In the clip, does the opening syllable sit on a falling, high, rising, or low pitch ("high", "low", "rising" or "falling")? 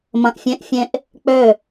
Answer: low